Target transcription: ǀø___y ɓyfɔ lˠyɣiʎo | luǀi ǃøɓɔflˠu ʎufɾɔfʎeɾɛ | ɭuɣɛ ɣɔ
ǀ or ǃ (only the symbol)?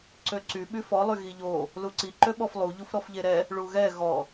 ǀ